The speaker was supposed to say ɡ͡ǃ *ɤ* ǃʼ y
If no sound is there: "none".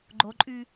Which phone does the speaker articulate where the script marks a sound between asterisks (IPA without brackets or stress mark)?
o